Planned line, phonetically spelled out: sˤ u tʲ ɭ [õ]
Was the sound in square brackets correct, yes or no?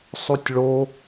no